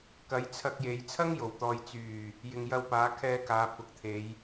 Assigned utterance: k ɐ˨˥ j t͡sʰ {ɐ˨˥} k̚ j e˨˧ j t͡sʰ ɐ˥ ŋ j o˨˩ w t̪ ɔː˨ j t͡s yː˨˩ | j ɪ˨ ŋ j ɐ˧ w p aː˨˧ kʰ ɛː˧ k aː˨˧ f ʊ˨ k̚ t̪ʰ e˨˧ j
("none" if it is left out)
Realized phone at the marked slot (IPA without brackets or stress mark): ɐ˧